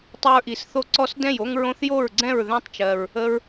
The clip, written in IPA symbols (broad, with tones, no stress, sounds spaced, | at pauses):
tˤ ə˦ ɹ ʔ i˨˩ s θ o˥˩ ǀ ɔ˦ s d ɛ̃˥˩ j o˦ ŋ ɹ õ˦ θ j o˥˩ ɹ ɡ͡ǀ ɛ̃˥˩ ɹ ð ɛ̃˦ tˤ t͡ʃ ɜ˨˩ ɹ | ə˦ ɹ